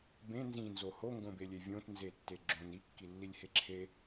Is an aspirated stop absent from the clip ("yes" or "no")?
no